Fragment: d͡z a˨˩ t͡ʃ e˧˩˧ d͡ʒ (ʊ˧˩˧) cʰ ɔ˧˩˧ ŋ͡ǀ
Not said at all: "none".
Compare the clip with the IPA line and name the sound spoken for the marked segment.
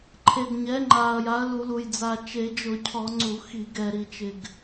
ʊ˧˩˧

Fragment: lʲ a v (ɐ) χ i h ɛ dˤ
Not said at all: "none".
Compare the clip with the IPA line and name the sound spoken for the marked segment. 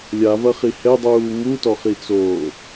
ɐ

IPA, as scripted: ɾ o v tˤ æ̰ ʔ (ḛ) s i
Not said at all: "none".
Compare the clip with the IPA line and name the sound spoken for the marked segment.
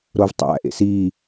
ḛ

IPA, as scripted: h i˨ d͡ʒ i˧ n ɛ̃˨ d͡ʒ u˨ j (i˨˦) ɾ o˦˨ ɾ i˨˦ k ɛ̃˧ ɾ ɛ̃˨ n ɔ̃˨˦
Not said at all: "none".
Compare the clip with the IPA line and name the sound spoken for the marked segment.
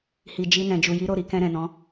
i˨˦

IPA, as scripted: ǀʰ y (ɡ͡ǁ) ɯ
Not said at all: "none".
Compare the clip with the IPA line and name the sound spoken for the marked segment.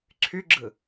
ɡ͡ǁ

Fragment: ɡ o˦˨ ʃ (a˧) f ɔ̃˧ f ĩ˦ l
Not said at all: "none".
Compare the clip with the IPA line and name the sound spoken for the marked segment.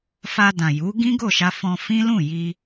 a˧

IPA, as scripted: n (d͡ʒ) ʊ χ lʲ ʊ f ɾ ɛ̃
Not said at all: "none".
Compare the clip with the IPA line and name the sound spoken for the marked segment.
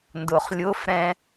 d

